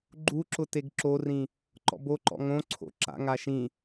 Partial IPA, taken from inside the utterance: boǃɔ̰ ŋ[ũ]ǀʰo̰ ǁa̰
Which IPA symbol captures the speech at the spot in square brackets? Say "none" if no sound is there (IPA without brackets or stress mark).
õ